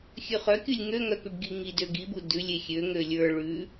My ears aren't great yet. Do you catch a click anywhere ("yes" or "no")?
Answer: no